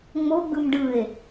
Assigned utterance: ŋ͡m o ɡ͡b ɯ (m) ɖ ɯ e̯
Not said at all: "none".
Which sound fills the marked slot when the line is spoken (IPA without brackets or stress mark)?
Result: m